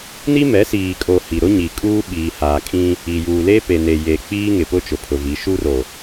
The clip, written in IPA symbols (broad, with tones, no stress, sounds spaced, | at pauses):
n i˦ m ɛ˨˦ s iː˨ kʼ o˨ h i˨ ɾ ʊ˦ ɲ i˨ kʼ uː˦ ɓ iː˨ h aː˨ kʼ ĩ˦ | i˨ j uː˨ l e˦ p e˨ n e˨ j e˨ k͡p iː˦ ŋ ɪ˨ p ʊ˦ t͡ʃ ʊ˨ pʰ ʊ˨ v i˨˦ ʃ u˦ r o˨